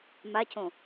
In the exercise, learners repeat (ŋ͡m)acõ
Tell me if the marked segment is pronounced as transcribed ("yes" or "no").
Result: no